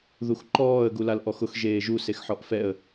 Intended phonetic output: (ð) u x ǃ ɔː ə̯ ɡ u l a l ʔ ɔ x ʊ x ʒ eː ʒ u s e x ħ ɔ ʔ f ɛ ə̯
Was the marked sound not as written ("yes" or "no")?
no